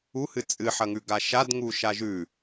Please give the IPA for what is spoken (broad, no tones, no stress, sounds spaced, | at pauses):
u h ɨ t͡sʼ ɨ ħ ɐ ŋ ʉ ɡ a ʃ a d ŋ u ʃ a ʒ ʉ